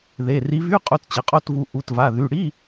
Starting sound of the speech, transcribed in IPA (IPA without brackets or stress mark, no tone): ð